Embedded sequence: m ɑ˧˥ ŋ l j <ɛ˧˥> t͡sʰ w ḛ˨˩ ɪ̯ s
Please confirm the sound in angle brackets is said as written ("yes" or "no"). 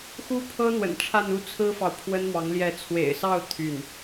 yes